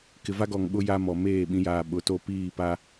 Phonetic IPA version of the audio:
k ɪ˨ v a˦ ɡ ɔ˨ ŋ ɓ ʊ˦ j a˦ m ɔ˨ m eː˦˨ ɓ ĩ˨˦ j aː˨ ɓ ʊ˨ t o˦ p iː˦˨ p a˦

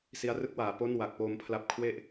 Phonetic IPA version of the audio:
s i˧ a̯ r ɯ˥˩ k̚ w aː˨˩ p o˥˩ n w a˨˩ k̚ p oː˧ m pʰ l a˦˥ p̚ kʰ w e˥˩ ʔ

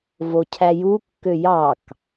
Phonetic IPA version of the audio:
v o cʰ æ j u kː ø j ɑ k

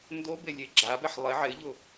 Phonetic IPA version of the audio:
n d o b e lʲ e ɡ͡ǁ a b ɛ ħ lˠ ɪ ʕ ɪ ʎ ʊ

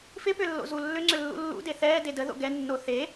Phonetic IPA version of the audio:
f ɪ p ʏ lː o̰ z u lː ʏ ŋ͡ǀ ʏ lː ṵ lː ṵ d e θ ɛː d e d ə ð o̰ ɡ ɛ nː o θ e

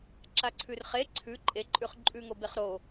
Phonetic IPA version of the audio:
ǁ a ǀʰ ʉ r χ e ǀʰ ʉ ǃʼ e ǃʼ ʉ χ ǃʼ ʉ ŋ o b e χ ɾ o

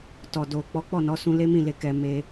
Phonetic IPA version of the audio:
t ɔ˨ d o˨ k͡p ɔ˨˦ k͡p ɔ˦˨ n ɔ˨˦ s ũ˧ l e˦ m ĩ˦˨ l e˧ k ɛ˧ m e˦

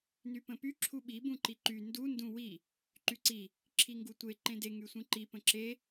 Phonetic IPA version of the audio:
n y p ə̃ p y ǁʰ u ɓ i b ũ ǃ i ǃ y n d u n d ũ w i | ǃ y ǀ i | ǁʰ i ŋ ɡ u tʷ e ǃ ẽ d e ŋ y sʷ ĩ ǃ i p ə̃ ǁ e

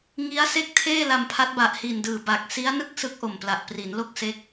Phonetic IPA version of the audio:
ŋ i˦˥ a̯ s e˥˩ k̚ tʰ eː˥˩ l a˧ m pʰ a˦˥ t̚ b a˨˩ ʔ h i˨˩ n d ɯː˨˩ b a˨˩ k̚ s i˦˥ a̯ n ɯ˥˩ k̚ s ɯ˦˥ k̚ ʔ o˨˩ m p l a˨˩ ʔ p r i˩˦ n l o˥˩ k̚ s e˦˥ k̚

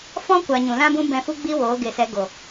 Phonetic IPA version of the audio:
f ɔ̃˧ kʷ a˨ ɲ ũ˨ l ã˦ b ũ˦ b ɛ̃˧ f u˦ ɡ͡b i˦ w oː˨˦ ɡ e˨ s ɛ˨˦ ɡ o˨

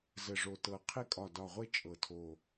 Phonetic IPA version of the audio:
z ə˨˩ ʐ o˨˩ t ɤ˨˩ qʰ e˧ kʼ ɒ˨˩ d ɒ˨˩ ʁʷ e˧ t͡ʃʼ ɤ˨˩ tʰ o˨˩

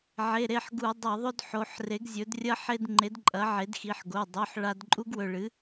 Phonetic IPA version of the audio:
ʕ e˩˧˩ ɾ e˩˧˩ ħ ɡ u˧˩˧ dˤ ɐ˧˩˧ ðˤ ɵ˦ d ħ o˩˧˩ ħ r e˩˥ ɡ zʲ ɵ˩˥ d rʲ ɐ˦ ħ e˦ d ŋ͡ǃ e˩˥ d ǃʼ ɐ˩˥ ʕ e˩˥ d x i˩˧˩ ħ ɡ o˩˧˩ dˤ o˩˧˩ ħ ɭ a˧˩˧ d ǃʼ u˦ ɡ w ɵ˩˧˩ ɭ ɨ˩˥

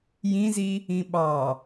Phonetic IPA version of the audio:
j ĩ z i | ĩ ɓ ɑ

